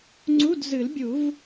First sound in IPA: ŋ͡ǀ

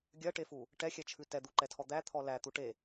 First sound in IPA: ɡʲ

